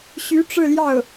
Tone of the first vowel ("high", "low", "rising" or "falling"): rising